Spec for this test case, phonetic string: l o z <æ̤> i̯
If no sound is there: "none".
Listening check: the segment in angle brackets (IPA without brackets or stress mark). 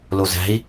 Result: æ̤